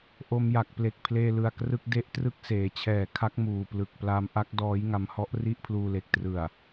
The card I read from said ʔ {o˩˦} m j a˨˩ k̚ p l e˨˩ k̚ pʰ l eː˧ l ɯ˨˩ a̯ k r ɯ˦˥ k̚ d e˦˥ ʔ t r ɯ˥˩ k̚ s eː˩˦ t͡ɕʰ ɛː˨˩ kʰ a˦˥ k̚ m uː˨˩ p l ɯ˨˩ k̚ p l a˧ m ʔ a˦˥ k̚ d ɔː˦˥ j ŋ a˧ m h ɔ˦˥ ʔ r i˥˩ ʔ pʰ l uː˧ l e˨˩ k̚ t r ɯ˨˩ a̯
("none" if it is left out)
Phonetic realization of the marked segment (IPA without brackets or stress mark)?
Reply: o˧